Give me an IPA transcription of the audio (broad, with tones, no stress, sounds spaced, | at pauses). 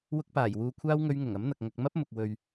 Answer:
w ʊ˧ k̚ p aː˨˩ j w uː˨ kʷʰ aː˧ w ŋ ɵ˨˧ ɥ ŋ ʊ˨˩ ŋ ɐ˨˥ m n̪ ɐ˨ k̚ ŋ ɐ˨ k̚ m ɐ˥ p̚ m ʊ˨ k̚ w ɵ˨ ɥ